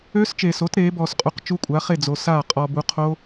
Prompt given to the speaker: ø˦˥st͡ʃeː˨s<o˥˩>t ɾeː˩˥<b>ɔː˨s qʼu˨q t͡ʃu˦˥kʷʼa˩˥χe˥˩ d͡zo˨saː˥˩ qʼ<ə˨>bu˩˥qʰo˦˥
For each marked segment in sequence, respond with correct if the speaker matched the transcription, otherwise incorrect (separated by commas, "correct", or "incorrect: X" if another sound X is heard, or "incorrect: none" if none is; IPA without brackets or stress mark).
incorrect: o˩˥, correct, incorrect: ɔ˨